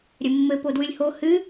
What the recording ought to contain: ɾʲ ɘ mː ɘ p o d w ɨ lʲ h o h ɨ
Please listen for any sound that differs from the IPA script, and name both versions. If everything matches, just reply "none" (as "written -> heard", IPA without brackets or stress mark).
none